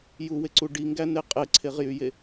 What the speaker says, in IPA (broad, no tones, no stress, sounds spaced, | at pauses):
j u w e ǀ u ɖ i ŋ ɡ æ n e qʼ e ǀʰ e ʁ j y j e